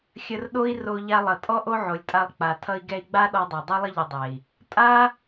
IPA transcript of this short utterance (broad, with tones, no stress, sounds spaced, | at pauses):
xʲ ə˧ r ɗ o˦ i̯ r o˧ ʎ a˧ lˠ ʌ˨ tʼ ɔ˦ ʔ o˦ ʕ o˨ lʲ tʼ a˧ lˠ k͡p a˨ tʰ ʌ˧ i̯ ɡ ɛ˧ i̯ ɡ͡b a˦ ɗ ɔ˧ dˤ ɛ˨ dˤ u˦ lˠ ə˦ ʎ ʌ˧ dˤ ɛ˨ i̯ | tʼ a˦